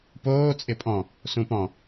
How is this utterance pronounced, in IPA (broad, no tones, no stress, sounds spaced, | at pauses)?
p oː t͡sʼ ɪ pʼ ɔ̃ | s ũ p ɔ̃